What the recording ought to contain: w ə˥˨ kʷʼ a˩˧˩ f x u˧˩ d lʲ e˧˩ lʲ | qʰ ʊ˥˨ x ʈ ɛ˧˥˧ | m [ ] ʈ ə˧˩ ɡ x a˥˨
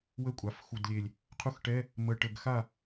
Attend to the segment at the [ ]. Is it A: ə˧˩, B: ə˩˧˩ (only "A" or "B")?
A